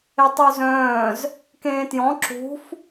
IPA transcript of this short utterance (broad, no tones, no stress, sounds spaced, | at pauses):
e tˤ u z œ̃ː z | k ẽː t j ɔ̃ ǁ ṳ f